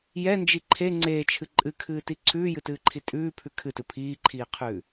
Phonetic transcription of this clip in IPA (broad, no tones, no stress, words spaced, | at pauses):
jɛnd͡ʒi ǃʰe ŋ͡ǀeːt͡ʃʰɨ ǃʼɨkʰɨːti ǀʰʉːjɨtɨːǃʰi tʼʉːpʰʉ kʰɨtɨ pʰiːǃʰiːqʰʉː